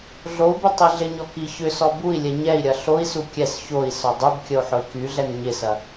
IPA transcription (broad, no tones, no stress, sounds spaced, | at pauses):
ɮ o u̯ b y tˤ i ɮ ɪ ɲ ɔ k i ç ʏ s ɔ b u i̯ lʲ ɛ ɲ ɛ i̯ ɾʲ ɐ ɬ o i̯ s u kʲ ɛ s ç o i̯ s ɔ dˤ u b kʲ ə u̯ ħ ʊ i̯ k y ɮ ɛ n ɲ ɪ s ɐ